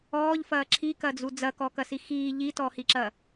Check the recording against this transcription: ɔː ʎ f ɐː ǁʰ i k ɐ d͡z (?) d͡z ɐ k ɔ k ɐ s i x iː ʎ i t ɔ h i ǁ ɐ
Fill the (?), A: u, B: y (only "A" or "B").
A